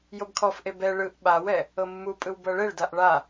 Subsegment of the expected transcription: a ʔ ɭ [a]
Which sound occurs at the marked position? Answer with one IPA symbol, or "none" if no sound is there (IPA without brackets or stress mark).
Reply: a